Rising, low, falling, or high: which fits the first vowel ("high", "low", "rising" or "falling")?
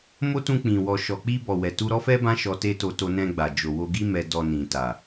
high